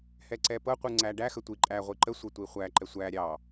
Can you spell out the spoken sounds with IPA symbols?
h ɛ ǀ ɛ p ɤ qʷ ɯ ŋ͡ǀ æ ɖ æ x ə tʷ i ǃʼ æ ʁʷ i ǃ ə sʷ ə tʷ i χʷ æ ǃ ɛ sʷ æ ɾʲ ɑ

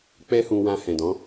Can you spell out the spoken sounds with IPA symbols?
k͡p ɛ˦ h ũ˧ w ã˧ h ɛ̃˨ d ɔ̃˨˦

